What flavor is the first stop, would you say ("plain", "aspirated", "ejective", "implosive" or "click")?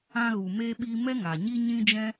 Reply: implosive